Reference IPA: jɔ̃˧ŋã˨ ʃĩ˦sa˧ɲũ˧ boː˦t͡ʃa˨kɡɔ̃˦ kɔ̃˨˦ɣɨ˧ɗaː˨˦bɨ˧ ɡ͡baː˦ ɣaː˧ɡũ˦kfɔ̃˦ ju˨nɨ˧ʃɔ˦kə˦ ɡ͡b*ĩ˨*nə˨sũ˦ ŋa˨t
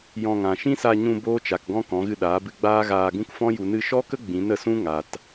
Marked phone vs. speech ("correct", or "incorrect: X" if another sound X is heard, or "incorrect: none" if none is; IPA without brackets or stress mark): incorrect: ĩ˨˦